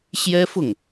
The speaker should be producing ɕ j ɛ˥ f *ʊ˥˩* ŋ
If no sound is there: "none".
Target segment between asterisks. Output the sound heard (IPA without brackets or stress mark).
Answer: ʊ˥˩